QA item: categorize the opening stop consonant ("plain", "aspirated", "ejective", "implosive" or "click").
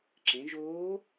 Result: click